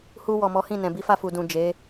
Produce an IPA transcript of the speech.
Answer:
h u˨ w ɔ˨ m ɔ˨˦ h ĩ˦˨ n ɛ̃˨ b i˨˦ f a˦˨ f u˨ d ũ˨ d͡ʒ e˨˦

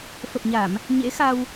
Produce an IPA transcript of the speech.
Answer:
f ə˨˩ p̚ ɲ a˧˩˨ m | ɲ ḛ˧˥ x a˧ w

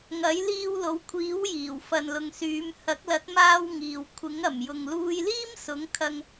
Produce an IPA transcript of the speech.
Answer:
ŋ ɐ˨˥ j l iː˧ w l o˨˧ w kʷʰ iː˨˥ w j iː˨˩ w f ɐ˨ n l ʊ˨ ŋ s yː˨˧ m h ɐ˨˥ k̚ l ɐ˨˥ t̚ m aː˧ w ŋ iː˨ w kʷʰ ɪ˨˥ ŋ ɐ˨˩ m j ʊ˨ ŋ l uː˧ j l iː˥ m s ʊ˨˥ ŋ kʰ ɐ˧ ŋ

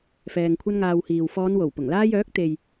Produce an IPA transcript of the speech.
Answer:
f ɛː˨ ŋ kʷʰ ɐ˥ n ŋ aː˧ w h iː˨ w f ɔː˨˧ n w o˨˩ w p ʊ˨˩ ŋ l aː˥ j œː˨˥ k̚ t̪ e˨ j

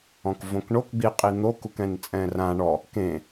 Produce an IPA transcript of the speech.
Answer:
ɔ̃ k v õ k ɳ o k ɡ͡b i qʼ i n̪ o k u k ɛ̃ n t͡sʼ ɛ̃ r ã ɳ ɔ | k ẽ

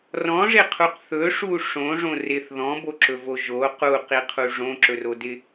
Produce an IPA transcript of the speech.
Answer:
r ɔ̃ ʐ ɪ qʰ u q θ ɵ ʂ u ʂ õ ʐ õ r ɪ θ ð ɔ̃ b o ǁ ɵ v o ʒ o q u q i qʰ u ʐ õ ǁ ɵ r o d ɪ

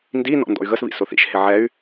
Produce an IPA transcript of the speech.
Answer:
n d i n ɔ̰ n d ɔ̰ y̯ ɣ ə s β ḭ s ʊ θ ḭ ʃ h ɪ ʕ ɛ y̯

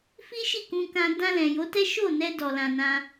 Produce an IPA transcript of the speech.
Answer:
f i˦ ʃ i˦˨ k ũ˧ k ã˧ d ã˧ l ɛ̃˨ j o˨˦ t ɛ˦ ʃ o˦˨ n ɛ˧ d ɔ˧ l ã˧ n ã˦

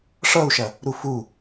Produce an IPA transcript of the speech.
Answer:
ʂ ʌ u̯ ʃ ɐ | ɾ u f u

